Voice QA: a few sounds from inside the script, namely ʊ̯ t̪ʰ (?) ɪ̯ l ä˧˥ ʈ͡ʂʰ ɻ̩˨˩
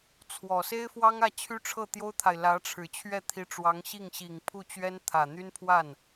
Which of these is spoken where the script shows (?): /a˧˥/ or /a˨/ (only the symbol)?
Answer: a˨